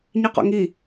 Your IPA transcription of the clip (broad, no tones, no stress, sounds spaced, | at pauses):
ɲ i q ɔ̰ ŋ i